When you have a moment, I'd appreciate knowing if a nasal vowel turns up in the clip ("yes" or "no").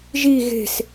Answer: no